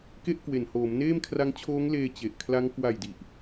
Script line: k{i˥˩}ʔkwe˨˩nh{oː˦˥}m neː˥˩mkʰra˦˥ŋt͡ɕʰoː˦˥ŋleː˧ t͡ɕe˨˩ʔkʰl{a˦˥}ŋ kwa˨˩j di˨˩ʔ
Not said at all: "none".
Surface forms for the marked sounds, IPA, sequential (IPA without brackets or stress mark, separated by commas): e˥˩, oː˩˦, a˦˥